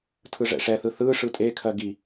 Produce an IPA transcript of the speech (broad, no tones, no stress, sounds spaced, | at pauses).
tʰ ɯ ʐ ɛ̰ ʂ ɛ θ ɯ θ ɯ ʂ ɯ tʼ e kʰ ɜ ɡ i